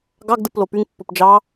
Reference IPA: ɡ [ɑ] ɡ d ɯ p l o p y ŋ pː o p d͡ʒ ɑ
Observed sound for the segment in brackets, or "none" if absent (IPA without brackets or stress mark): ɑ